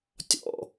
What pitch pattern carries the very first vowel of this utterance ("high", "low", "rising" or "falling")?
falling